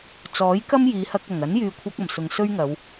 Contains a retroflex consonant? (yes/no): no